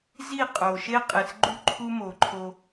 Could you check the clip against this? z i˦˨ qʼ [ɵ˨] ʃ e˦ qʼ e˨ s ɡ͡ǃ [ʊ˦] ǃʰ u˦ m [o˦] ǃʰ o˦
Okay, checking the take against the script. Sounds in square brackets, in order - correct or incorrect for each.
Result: incorrect: o˨, incorrect: u˦, incorrect: o˨

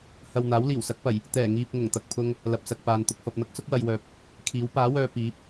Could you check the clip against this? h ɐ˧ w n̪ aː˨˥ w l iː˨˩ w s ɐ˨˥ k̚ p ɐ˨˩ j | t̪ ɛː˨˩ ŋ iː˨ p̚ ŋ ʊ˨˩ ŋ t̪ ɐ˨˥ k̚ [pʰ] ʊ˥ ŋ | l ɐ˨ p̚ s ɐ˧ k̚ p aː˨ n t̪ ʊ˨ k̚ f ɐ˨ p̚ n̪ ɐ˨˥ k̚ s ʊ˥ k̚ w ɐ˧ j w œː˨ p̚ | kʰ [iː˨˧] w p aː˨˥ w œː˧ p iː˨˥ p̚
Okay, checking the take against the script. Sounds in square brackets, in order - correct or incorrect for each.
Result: correct, incorrect: iː˨˥

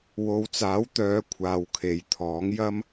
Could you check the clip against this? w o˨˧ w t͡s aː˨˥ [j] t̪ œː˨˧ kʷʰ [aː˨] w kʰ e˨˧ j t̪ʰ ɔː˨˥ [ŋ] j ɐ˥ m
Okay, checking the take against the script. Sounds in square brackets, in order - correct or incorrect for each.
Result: incorrect: w, correct, correct

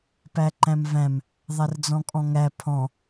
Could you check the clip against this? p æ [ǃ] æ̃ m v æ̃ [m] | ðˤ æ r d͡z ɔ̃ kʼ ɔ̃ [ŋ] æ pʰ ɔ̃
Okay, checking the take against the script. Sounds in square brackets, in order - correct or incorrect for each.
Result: correct, correct, correct

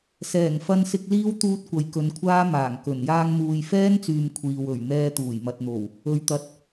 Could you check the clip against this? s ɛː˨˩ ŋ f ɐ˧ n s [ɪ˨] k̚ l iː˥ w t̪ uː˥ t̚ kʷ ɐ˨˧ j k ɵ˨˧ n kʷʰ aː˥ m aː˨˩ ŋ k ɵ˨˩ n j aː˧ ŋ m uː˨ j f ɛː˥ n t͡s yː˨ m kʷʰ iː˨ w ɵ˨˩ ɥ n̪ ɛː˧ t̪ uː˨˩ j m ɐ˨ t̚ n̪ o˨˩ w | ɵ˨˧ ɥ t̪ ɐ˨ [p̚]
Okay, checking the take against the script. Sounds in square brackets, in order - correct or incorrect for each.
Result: incorrect: ɪ˧, incorrect: t̚

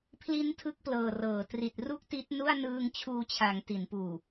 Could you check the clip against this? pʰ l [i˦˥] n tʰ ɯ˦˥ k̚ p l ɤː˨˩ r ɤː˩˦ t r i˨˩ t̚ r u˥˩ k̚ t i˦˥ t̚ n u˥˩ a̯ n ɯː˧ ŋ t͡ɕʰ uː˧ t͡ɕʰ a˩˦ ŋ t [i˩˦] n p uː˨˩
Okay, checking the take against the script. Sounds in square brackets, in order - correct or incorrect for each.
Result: correct, correct

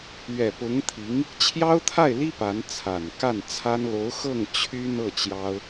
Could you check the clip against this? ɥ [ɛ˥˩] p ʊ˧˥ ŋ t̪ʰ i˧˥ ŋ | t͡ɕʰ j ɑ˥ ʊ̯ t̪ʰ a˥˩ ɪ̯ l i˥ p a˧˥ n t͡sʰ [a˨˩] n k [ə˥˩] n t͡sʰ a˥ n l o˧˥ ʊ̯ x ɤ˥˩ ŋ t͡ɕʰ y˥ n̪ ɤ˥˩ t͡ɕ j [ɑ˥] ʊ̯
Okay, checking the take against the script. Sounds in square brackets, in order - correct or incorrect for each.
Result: incorrect: ɛ˨˩, correct, incorrect: a˥˩, correct

